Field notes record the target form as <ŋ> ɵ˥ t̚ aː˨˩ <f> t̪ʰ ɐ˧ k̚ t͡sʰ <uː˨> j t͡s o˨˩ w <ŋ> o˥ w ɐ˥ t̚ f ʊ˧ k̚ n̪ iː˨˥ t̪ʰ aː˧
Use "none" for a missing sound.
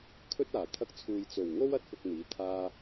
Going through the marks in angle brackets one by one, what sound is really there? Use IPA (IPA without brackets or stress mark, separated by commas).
kʰ, none, uː˨, ŋ